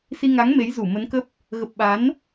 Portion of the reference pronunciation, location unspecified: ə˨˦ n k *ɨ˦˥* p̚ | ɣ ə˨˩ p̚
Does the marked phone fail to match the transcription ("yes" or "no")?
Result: yes